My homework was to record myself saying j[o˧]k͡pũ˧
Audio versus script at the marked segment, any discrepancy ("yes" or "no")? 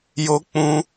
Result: no